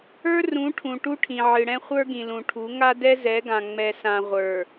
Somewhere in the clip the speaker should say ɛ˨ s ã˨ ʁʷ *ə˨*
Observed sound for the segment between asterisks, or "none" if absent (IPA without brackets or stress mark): ə˞˨